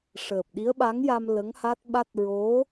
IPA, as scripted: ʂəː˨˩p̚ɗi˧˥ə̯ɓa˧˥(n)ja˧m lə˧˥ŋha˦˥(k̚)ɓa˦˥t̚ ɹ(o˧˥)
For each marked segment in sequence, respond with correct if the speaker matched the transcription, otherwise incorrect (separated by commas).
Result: incorrect, incorrect, correct